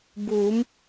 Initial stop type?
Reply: plain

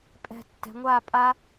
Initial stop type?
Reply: ejective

